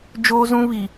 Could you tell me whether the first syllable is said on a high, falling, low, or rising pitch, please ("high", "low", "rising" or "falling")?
high